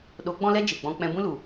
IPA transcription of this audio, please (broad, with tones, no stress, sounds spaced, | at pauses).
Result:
ɗ o˨˦ ɡ͡b ɔ̃˦ l ɛ˦ d͡ʒ e˨ ɡ͡b ɔ̃˧ k͡p ɛ̃˧ b ũ˦ l u˨